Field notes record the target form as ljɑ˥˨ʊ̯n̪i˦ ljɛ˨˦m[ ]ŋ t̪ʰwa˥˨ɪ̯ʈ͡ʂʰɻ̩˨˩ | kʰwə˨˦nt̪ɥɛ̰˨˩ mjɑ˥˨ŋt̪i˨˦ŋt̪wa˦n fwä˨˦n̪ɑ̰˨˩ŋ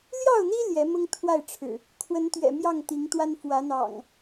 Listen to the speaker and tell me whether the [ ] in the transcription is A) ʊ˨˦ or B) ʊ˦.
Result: B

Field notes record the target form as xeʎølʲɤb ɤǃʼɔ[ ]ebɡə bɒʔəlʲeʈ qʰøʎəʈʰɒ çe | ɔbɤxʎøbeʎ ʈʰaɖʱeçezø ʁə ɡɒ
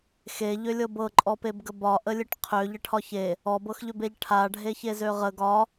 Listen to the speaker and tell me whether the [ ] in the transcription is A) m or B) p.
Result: B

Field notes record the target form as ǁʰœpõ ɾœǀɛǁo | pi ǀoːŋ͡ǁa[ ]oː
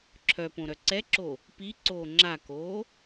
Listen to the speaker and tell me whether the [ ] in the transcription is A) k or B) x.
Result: A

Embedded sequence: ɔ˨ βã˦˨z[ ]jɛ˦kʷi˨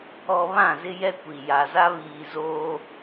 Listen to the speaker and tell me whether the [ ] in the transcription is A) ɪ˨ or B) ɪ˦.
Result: B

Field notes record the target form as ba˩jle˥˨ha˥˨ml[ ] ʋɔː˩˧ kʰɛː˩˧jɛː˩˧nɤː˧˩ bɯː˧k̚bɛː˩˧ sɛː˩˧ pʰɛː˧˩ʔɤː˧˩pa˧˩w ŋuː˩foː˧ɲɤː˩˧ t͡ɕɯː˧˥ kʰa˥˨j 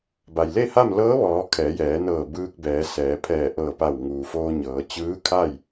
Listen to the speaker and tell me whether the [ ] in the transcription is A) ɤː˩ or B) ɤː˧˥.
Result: B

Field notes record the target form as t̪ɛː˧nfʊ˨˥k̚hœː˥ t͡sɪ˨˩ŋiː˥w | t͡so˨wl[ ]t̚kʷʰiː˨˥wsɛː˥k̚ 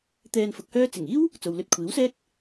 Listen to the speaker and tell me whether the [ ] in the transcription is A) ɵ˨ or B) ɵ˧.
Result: B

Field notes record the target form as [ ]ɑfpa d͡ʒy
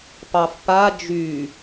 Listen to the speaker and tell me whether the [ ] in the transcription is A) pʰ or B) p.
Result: B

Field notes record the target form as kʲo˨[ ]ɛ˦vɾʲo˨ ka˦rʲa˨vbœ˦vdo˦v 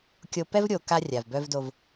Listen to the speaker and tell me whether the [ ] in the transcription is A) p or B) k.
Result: A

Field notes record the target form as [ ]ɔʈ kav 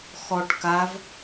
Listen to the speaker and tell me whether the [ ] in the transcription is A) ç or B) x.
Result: B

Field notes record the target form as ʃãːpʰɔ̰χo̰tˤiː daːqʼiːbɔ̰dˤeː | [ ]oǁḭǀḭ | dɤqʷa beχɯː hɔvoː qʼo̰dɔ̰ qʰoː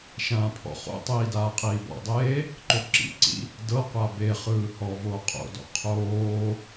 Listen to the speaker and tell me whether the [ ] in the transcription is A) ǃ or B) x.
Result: A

